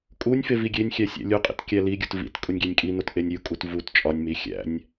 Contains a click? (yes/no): no